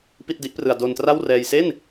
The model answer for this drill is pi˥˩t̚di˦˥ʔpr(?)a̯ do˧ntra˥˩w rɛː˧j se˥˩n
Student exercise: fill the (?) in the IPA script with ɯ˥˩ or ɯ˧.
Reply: ɯ˧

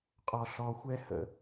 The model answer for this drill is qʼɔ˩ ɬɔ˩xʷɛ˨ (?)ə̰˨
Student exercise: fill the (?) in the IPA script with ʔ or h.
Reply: h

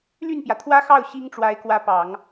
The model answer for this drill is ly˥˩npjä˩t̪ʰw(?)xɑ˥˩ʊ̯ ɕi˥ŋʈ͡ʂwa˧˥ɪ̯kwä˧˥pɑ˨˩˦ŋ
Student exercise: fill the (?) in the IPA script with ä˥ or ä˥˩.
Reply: ä˥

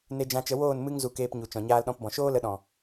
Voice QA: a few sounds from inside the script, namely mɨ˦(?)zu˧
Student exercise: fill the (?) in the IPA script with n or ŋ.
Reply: ŋ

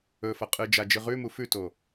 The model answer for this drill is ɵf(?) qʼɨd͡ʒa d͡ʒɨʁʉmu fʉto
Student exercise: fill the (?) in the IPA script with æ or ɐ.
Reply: ɐ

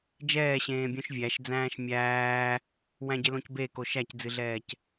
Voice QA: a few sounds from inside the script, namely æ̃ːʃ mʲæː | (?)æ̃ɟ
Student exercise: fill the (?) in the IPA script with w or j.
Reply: w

